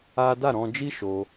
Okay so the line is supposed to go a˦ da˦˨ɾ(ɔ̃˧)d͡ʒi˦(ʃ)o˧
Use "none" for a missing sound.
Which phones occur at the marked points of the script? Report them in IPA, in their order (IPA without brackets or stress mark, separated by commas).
ɔ̃˧, ʃ